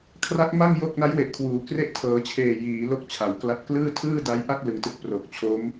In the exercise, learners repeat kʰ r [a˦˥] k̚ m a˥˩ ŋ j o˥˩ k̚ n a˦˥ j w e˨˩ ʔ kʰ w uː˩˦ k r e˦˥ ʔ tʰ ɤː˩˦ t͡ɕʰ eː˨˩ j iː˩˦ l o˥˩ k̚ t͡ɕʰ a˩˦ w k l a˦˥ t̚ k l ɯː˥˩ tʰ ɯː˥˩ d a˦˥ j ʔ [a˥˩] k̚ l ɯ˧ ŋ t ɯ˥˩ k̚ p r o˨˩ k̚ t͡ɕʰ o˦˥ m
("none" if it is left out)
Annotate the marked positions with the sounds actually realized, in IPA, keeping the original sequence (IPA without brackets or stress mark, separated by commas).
a˦˥, a˥˩